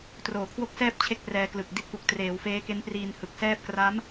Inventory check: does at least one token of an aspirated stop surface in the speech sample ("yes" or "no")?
yes